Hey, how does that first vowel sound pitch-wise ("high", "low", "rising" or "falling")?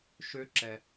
rising